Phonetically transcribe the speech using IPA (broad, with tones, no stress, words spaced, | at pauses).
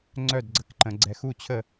ŋ͡ǀœ˥˩dɡ͡ǀə˩˧kǃə̃˩˧ ɡ͡ǀɛ˩˧x u˥˩t͡ɕʰə˥˩